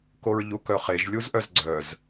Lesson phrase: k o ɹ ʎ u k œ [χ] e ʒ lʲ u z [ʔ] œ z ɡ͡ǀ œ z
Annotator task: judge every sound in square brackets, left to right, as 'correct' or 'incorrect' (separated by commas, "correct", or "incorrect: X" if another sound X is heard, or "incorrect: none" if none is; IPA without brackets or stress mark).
correct, correct